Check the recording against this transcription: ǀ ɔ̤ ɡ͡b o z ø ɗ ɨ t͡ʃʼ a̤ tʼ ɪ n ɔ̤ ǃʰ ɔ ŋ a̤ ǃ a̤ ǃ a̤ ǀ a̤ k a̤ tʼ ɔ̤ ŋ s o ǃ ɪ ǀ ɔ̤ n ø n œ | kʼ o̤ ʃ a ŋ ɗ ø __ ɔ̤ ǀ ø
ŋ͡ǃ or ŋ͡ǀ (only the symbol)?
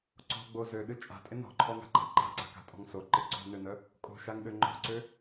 ŋ͡ǃ